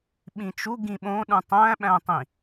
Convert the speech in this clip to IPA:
ɓĩt͡ʃu ɡĩɓõ ɗũtˤæ̃ɓæ̃tˤĩ

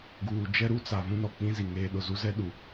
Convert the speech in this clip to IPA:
ɡuː˨ d͡ʒɛ˦ɾu˦t͡sa˨ vũ˦nɔ˨k͡pĩ˦zi˨ ŋeː˦ɗʊ˨ zu˦zɛ˦ɗu˨

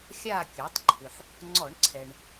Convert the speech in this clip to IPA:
xʲa˦˨kʲɤ˩˧tˤǃʰʏ˩ħ | ŋ͡ǀɔ˧˩˧ɳǀʰɛ˩ɳ

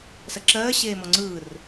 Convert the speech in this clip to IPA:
sɜǁɜː ɕeːmɔŋ͡ǀɯːr

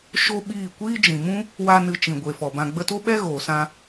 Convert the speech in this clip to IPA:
ʃo˦ɓiː˦˨ kʷiː˦d͡ʒĩ˨mũ˦ | wa˦nɨ˧ t͡ʃĩ˨ɡʷe˨fɔ˨bã˧ ɡ͡bə˧to˦ɓɛ˦ ɣoː˨sã˧

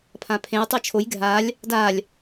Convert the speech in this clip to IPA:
pʰãpʰẽj tˤet͡ʃʰoj ɡʱalʲ | dalʲ

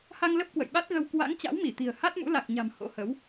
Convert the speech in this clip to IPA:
ha˧ŋ lə˦˥p̚kwə̰˧˨jɓa˦˥t̚ɣə˧w kwa̰˧˥ŋ t͡ɕa̰˧˥wmi˧˩ t̪i̤˨˩ə̯ ha˦˥t̚mṵ˧˥la˨˩k̚ɲa̤˨˩m ho̰˧˥hə˨˦w

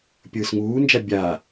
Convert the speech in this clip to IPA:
pʲɯːsŋuːnd͡ʒa bʲa

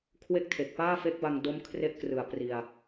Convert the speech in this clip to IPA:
kʰwe˥˩k̚tʰe˨˩k̚ paː˥˩fe˦˥k̚ba˧ŋdo˦˥m kʰre˦˥ʔkrɯ˨˩a̯ pri˧a̯

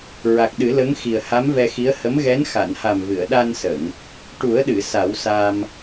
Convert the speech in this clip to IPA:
ɹa˨˩k̚ɗɨ˨˩˦lə˧˥ŋxi˨˩ə̯ ha˧˥mvɛ˧xi˧˥ə̯ hə˧˥mɣɛ˧˥n xa˨˩˨nha˨˩m vɨ˨˩˨ə̯ ɗa˧nsə˨˩˨ŋ | ʈu˨˩˦ə̯ɗɨ˨˩˨ sa˨˩˦wsa˧m

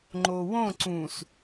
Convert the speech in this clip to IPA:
ŋ͡ǃowõ ǀũs

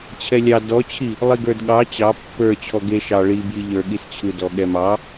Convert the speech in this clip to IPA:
t͡ɕʰɛlʲɑ dɔt͡ɕʰi | lˠiɡə˞dɠɑ t͡ɕɑ pːə˞ t͡ɕʰɔɡe ʃɑ ɭibji ʎə˞ɠist͡ɕʰɯdɔ ɠɛmɑ

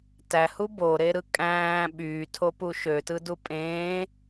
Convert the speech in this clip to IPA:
tæhu boɾeɾɯ kʼæ̃ː ɓyːtʰopu ʃøtɯdu pʼẽː

